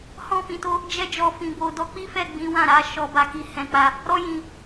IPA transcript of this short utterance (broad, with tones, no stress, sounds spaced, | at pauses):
h ɔ̃˧ f ĩ˨ t o˧ | d͡ʒ ɛ˧ d͡ʒ ɔ˨ f ĩ˨ b o˨ d ɔ˧ k͡p i˦ f ɛ˦˨ ɡ͡b ĩ˨˦ w ã˦˨ ɾ a˨˦ ʃ ɔ˧ b a˧ k i˧ h ɛ̃˨ k͡p a˧ | ɾ ɔ˦ j ĩ˧